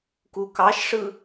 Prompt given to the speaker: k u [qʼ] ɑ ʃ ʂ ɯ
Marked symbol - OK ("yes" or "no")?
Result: no